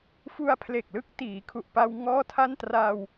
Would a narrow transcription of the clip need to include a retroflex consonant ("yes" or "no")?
no